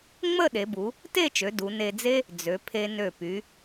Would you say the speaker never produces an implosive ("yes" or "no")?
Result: no